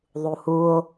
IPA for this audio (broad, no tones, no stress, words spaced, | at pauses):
ðˤuhuo̯